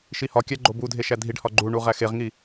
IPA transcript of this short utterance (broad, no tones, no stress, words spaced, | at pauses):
ʃihɒkʲæ ɡ͡ǃobudʱe ʃædʱiɖhɒ ɡ͡ǃuɳu ʁæxeʁŋi